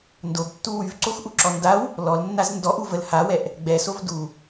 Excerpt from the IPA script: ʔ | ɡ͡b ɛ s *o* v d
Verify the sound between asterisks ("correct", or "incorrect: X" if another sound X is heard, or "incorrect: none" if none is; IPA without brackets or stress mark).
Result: correct